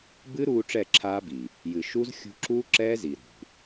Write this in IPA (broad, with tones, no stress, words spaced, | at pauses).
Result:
bɨ˦ɾuː˧ ʈ͡ʂɛ˦˨ǁʰaː˦bi˨ | jɨ˨ ʃu˦z xʲṳ˧ǁuː˦ ǁɛː˦zi˨ɾṳ˨